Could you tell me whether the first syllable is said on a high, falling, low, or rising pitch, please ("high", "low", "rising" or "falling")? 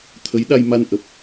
rising